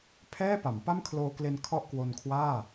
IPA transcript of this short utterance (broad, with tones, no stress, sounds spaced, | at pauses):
pʰ ɛː˥˩ p a˩˦ m p a˥˩ m kʰ l oː˧ k l e˧ n kʰ ɔ˥˩ ʔ k w o˧ n kʰ w aː˥˩